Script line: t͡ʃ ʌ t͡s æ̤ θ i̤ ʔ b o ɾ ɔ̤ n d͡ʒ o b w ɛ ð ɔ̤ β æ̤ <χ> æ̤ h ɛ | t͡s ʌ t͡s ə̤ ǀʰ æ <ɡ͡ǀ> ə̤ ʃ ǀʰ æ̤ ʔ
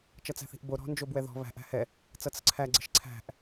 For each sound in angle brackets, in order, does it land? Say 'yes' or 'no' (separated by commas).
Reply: no, yes